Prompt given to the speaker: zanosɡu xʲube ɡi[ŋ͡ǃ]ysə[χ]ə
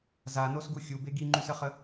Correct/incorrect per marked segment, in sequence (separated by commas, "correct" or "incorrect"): correct, correct